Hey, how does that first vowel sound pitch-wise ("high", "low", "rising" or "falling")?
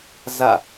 falling